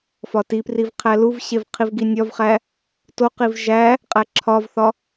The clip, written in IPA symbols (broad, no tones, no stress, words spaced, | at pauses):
fɒtipriv qʰæluvɕev qʰivɡinʲɒvχæ | toqiv ʒæ | qʼæǁʰɒvθɒ